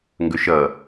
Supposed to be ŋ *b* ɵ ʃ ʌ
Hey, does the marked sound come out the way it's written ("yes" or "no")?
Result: no